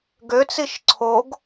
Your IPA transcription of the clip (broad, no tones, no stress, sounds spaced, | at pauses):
ɡ ø t͡s i ʃ ǀʰ o ɡ